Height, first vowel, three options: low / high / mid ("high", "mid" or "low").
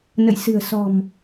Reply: mid